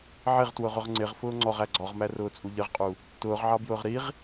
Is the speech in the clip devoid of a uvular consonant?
no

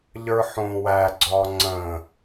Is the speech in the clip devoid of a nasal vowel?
no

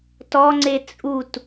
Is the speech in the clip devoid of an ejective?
no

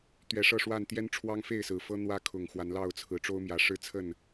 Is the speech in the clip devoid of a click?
yes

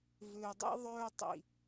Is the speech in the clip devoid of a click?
yes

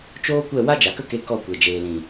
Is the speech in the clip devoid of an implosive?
yes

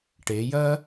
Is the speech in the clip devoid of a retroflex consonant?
no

